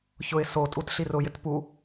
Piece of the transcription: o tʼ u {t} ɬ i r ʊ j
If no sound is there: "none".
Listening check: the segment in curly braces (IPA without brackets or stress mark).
t